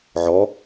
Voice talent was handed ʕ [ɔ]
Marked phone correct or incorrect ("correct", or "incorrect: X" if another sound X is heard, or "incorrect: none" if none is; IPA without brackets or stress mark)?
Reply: correct